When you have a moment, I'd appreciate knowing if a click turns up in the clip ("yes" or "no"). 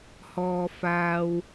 no